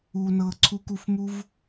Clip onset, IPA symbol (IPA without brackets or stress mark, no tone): uː